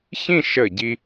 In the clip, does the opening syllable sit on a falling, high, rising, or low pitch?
falling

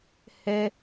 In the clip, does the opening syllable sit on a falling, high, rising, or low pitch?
high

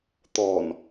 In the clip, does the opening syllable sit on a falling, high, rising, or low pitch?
low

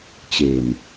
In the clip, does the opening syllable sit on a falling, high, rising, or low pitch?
low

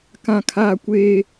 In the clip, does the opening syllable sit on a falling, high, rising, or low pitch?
high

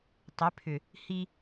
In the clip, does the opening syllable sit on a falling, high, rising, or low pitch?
rising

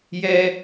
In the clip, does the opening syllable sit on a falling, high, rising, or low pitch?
high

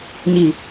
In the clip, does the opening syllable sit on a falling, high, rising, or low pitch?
low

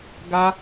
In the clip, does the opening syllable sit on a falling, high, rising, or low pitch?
high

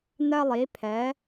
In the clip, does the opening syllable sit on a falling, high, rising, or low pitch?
high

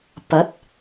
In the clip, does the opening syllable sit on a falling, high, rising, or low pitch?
rising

